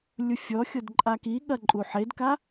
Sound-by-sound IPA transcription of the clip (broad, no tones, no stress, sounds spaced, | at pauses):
lʲ u fʲ ɔ xʲ o d ǃʼ a k i ɠ ɐ ǃʼ u ħ e d k a